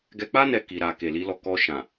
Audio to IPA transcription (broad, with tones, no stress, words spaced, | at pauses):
ɡɛ˧k͡pa˦ nɛ˦ki˧ɾa˧ ke˨li˨˦lɔ˧kɔ˧ ʃã˨